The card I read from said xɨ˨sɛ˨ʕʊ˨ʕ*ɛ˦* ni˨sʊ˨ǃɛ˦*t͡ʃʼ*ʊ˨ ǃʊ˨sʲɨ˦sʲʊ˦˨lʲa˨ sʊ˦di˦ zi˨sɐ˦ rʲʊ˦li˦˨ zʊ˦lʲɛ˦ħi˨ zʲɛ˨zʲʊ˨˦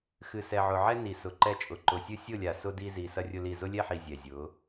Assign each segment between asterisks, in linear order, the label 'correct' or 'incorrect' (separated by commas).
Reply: correct, correct